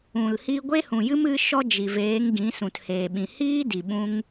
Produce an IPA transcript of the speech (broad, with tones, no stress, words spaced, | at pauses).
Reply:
ũ˨l hiː˧ɡʷe˦hũ˨jɨ˦m ɨ˦ʃɔ˦ d͡ʒi˨veː˨˦ŋɡĩ˨˦ sũ˨theː˨ɓĩ˨ hiː˦di˨ ɓũ˦ŋ